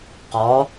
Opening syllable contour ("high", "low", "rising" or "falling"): rising